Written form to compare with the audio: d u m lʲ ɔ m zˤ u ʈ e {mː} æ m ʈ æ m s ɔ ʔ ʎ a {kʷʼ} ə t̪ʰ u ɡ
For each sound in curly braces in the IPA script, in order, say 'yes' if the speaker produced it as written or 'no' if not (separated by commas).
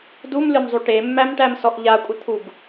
yes, yes